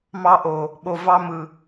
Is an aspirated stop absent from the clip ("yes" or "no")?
yes